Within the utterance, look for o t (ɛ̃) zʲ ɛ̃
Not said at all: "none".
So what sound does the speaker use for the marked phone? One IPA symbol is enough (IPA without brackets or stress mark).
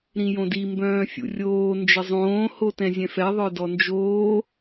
ɛ̃